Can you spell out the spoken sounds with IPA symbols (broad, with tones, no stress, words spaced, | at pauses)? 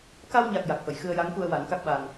ka˧wɲa˨˩k̚ ja˨˩k̚fə˨˩˨j xɨ˧ə̯ja˧˥ŋku˧ə̯ wa˨˩˦nka˦˥k̚ɓa˧n